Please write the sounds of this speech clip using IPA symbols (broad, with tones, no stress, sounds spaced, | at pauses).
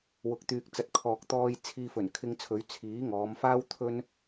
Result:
w ʊ˨ k̚ t̪ yː˨ k̚ t͡s ɐ˨ t̚ kʰ ɔː˨ k̚ t̪ ɔː˧ j t͡sʰ iː˧ f ɵ˨˩ n kʰ ɪ˧ ŋ t͡sʰ ɵ˨˧ ɥ t͡sʰ iː˨˥ ŋ ɔː˨˧ m f aː˥ w t̪ʰ ɵ˥ n